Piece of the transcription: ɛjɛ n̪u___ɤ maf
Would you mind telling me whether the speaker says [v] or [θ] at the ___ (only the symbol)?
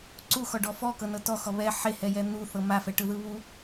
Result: θ